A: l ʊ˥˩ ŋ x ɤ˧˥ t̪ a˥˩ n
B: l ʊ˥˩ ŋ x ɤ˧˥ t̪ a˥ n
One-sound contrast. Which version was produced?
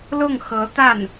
A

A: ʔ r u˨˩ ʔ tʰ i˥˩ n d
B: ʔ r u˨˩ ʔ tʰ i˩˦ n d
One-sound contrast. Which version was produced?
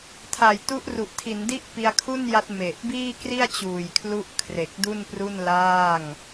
B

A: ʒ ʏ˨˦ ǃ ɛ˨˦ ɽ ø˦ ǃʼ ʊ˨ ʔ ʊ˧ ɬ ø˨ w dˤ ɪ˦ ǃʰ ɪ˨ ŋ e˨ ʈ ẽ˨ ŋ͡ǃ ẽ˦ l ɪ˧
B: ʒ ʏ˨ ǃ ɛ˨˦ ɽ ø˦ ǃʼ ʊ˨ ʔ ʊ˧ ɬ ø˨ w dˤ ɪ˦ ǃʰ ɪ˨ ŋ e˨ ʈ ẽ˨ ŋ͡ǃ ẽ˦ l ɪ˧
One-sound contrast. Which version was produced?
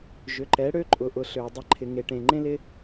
A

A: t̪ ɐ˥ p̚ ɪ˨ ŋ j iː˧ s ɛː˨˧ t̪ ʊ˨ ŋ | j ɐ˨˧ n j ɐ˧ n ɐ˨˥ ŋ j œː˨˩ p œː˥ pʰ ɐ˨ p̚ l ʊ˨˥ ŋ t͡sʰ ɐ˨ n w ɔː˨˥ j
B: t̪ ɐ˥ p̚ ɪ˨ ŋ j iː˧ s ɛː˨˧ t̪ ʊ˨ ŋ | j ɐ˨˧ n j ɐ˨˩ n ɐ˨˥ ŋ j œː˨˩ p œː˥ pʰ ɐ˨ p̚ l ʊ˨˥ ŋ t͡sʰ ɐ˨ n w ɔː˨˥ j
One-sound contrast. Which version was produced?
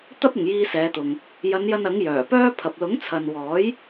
A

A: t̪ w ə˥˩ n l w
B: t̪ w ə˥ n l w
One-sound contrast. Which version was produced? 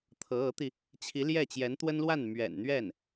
B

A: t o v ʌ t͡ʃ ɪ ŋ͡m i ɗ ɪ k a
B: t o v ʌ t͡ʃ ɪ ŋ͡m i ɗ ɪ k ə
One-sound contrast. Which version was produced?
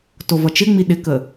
B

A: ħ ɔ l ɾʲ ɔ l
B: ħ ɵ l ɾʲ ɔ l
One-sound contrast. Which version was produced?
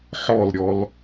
A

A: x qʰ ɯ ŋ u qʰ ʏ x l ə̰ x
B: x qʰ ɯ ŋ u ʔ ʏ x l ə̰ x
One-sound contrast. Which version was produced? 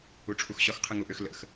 B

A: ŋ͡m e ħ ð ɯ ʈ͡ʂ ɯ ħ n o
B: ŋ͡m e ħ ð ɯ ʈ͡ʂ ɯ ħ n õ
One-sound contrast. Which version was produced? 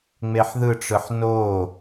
A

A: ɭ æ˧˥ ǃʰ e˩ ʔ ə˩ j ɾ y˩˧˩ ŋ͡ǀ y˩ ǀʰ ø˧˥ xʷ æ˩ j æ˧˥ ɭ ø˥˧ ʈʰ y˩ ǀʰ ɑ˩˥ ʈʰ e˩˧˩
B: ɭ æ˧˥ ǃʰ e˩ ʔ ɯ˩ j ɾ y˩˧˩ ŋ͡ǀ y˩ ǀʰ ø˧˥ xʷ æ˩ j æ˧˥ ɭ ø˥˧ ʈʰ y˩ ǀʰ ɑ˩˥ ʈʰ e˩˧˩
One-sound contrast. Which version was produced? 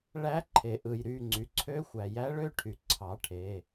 B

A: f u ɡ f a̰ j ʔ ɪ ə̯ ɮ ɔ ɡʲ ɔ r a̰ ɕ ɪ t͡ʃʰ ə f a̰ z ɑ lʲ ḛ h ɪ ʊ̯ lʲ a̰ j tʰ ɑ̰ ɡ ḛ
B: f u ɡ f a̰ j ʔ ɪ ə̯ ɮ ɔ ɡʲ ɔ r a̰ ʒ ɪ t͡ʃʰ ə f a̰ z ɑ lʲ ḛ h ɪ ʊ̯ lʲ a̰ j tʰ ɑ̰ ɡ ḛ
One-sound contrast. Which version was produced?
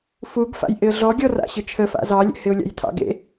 A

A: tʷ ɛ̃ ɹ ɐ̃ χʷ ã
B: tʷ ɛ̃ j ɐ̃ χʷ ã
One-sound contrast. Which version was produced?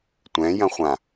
B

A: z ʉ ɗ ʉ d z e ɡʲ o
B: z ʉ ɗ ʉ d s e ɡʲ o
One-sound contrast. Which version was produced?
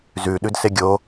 B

